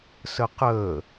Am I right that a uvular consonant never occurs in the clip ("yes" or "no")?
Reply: no